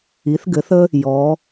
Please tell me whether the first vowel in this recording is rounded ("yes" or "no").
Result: no